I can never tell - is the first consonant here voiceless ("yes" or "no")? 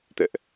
yes